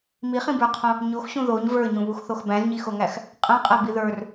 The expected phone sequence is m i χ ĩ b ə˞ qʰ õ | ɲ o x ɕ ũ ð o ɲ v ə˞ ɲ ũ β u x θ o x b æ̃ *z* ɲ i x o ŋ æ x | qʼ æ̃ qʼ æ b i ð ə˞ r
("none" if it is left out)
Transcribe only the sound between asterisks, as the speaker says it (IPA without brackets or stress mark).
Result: z